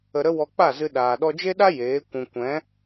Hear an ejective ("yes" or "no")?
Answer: no